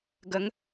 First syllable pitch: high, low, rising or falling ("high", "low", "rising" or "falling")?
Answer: rising